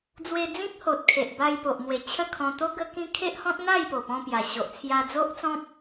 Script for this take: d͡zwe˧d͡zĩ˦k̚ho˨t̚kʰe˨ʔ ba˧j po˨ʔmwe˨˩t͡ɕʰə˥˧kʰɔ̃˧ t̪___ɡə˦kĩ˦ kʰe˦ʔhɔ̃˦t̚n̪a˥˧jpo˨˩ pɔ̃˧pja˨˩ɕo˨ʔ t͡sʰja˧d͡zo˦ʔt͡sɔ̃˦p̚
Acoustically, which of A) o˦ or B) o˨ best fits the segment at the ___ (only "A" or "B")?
A